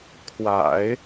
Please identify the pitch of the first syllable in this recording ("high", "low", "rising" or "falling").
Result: low